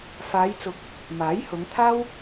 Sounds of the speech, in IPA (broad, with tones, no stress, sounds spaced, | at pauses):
f aː˨˧ j t͡s ʊ˨˥ k̚ | m aː˨˥ j h ʊ˨˧ ŋ t̪ʰ aː˥ w